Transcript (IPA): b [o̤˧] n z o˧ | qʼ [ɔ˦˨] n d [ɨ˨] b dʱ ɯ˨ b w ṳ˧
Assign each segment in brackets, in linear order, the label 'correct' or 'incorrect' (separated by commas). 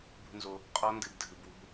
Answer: incorrect, incorrect, correct